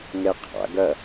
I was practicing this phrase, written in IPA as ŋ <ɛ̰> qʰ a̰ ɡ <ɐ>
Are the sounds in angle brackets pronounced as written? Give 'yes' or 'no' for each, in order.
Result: no, yes

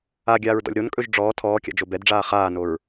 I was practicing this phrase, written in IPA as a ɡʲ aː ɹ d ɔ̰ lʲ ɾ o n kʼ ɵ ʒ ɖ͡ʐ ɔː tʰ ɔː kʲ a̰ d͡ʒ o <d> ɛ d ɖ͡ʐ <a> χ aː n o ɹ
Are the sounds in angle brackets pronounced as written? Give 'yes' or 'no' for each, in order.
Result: no, no

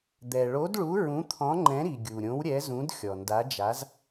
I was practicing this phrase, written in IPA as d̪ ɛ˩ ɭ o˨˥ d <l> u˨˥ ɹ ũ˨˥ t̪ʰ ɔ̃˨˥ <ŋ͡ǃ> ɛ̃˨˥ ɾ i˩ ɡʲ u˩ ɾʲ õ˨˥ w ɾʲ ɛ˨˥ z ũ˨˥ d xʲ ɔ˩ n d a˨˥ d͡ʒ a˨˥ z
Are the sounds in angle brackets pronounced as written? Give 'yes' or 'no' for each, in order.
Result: no, yes

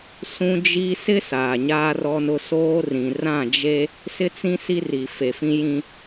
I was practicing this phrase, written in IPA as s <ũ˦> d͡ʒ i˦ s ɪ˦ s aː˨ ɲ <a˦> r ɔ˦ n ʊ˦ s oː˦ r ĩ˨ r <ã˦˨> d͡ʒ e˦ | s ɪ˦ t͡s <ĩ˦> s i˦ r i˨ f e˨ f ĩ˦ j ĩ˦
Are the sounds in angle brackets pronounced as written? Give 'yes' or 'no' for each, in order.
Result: yes, no, yes, yes

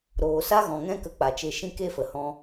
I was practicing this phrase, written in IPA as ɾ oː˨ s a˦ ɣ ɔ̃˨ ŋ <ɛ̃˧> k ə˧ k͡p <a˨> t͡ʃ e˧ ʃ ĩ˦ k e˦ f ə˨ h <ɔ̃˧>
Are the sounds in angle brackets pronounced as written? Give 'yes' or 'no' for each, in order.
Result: no, yes, yes

